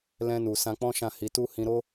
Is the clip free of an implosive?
yes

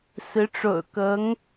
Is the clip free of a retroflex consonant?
no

